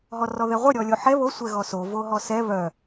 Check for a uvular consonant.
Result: present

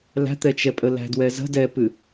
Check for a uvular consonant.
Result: absent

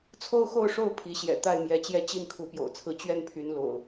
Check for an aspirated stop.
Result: present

